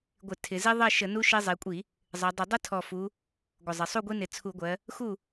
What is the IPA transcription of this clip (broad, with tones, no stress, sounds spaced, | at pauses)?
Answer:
ɡʷ ɪ˧˩˧ tʰ ɪ˩˧ z i˦ ðˤ ɜ˥˨ ʃ ə˧˩˧ n u˦ ʃ i˦ zˤ i˩˧ kʷʼ i˧˩˧ | zˤ ɜ˩˧ dˤ ɪ˧˩˧ dˤ ə˦ tʰ ɔ˨˩ f u˩˧ | ɡʷ ə˨˩ zˤ ɪ˩˧ sˤ u˥˨ ɡʷ i˦ n ɪ˩˧ t͡sʰ u˧˩˧ ɡʷ ɜ˩˧ | x u˥˨